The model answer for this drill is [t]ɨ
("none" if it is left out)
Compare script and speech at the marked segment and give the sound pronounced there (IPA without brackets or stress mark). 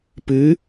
p